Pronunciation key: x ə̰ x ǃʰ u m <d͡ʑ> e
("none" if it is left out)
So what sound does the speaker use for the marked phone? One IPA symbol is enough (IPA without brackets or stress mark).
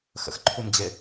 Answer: d͡ʑ